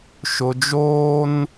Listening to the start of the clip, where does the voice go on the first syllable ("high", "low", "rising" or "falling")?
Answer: low